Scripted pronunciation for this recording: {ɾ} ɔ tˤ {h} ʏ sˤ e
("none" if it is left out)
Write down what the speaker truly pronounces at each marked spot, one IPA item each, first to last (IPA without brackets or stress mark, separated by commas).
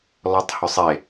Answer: l, h